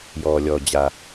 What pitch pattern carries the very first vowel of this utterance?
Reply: low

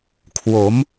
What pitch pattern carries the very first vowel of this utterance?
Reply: rising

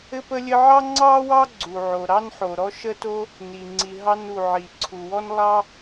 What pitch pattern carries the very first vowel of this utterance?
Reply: high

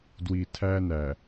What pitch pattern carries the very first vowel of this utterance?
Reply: low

